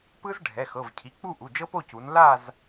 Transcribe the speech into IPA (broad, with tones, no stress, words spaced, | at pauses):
pɯ˥zɖʱɛ˩˧˩ xɤ˩˧˩vcʰi˩˧˩ k͡pu˥˧ʔu˩˧˩ d͡ʒɤ˥po˥˧cu˨˦n la˥˧z